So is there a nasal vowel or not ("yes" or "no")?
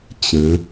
yes